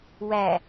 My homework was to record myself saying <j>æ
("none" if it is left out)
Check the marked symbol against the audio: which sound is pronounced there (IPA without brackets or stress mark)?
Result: w